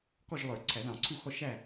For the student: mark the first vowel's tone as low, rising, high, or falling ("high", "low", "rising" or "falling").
falling